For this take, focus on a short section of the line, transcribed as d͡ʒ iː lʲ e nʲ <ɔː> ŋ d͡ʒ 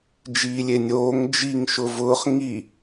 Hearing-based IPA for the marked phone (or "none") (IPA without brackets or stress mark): oː